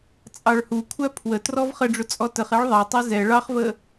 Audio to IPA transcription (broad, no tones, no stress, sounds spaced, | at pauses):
t͡sʼ ɑ ɭ h u kʷʰ æ pʰ w ə t r ɔ v χ ə ɖ͡ʐ ʊ t͡sʼ ɔ t ə χ ɛ ɭ ðˤ ɛ tˤ ɛ z ɛ ɭ ɑ χ v ə